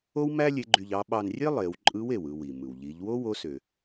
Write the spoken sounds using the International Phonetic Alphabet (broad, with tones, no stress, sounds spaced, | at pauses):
o˥ w m æ˥ lʲ e˧˥ ɡ͡ǃ y˧ ʎ ɑ˧˥ ɓ ɑ˧ n rʲ e˥ lˠ e˩˧ w ǃʼ ɯ˧˥ w e˩ w ɯ˧ w i˩ m ɯ˩ w ʎ i˩˧ ʎ w o˥ w o˧˥ s ø˩